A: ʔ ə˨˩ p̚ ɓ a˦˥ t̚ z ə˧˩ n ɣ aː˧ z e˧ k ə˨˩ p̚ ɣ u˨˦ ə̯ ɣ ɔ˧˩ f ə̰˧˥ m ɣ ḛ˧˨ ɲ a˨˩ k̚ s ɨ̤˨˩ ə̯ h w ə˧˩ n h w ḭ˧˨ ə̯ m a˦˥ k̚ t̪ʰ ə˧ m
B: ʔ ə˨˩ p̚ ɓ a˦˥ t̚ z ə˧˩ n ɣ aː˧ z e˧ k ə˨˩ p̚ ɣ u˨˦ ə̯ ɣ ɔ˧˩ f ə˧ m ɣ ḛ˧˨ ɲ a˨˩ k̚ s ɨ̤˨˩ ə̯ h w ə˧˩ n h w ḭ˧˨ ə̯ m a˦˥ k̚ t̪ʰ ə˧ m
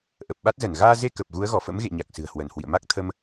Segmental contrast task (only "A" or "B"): A